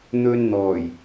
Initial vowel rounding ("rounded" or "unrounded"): rounded